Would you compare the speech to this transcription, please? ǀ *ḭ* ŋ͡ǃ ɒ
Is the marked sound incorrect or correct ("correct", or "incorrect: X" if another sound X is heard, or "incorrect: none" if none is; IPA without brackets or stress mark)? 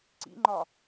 correct